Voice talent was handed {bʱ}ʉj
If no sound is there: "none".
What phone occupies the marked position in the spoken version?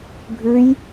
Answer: bʱ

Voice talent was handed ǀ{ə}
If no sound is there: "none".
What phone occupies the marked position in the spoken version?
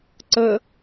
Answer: ə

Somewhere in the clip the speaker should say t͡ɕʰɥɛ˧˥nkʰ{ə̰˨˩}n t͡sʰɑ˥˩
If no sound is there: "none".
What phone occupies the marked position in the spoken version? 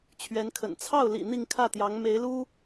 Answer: ə̰˨˩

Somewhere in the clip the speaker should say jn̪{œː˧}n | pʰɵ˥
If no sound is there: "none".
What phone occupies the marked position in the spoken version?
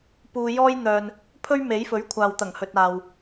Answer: œː˧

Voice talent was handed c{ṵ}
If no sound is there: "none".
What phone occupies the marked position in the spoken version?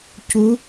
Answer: u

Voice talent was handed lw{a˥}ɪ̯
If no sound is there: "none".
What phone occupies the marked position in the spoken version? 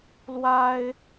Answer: a˥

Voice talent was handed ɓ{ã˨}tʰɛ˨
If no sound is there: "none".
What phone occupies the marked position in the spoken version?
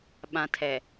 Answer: ã˨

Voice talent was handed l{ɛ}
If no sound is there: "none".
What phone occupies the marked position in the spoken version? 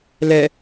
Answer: ɛ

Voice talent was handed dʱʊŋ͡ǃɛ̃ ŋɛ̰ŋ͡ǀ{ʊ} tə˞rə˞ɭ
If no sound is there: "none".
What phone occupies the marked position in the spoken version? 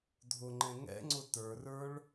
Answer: ʊ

